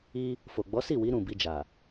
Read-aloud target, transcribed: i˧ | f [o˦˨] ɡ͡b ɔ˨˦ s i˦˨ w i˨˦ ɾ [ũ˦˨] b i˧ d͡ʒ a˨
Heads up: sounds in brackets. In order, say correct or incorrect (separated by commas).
incorrect, correct